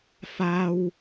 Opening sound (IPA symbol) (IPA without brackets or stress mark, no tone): f